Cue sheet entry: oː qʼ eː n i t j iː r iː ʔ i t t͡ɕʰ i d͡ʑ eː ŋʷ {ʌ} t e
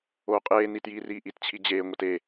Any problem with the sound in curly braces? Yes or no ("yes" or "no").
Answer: no